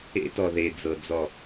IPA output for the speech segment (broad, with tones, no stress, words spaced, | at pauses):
ḛ˦tɔ˨ðe˨ d͡zɤ˨d͡zɔ˨